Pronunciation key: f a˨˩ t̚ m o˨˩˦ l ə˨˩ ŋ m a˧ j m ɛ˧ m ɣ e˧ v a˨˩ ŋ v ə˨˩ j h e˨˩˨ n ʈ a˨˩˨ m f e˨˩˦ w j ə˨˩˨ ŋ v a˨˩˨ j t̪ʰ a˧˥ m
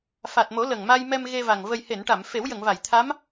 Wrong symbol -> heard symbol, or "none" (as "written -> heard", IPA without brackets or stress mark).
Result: none